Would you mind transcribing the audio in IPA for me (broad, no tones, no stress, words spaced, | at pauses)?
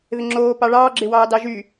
ðɪŋ͡ǁoː pɑɭɑː ɡ͡ǁɪwɑːdɑʒy